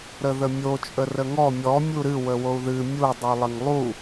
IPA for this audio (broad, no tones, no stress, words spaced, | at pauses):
ɾəðəmʲo t͡ʃʼərəŋɔ mʲɔ mʲuɾɨ wəwou̯ðɨ mʲu dˤulˠɪŋlˠu